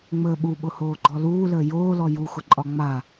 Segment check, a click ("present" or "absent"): present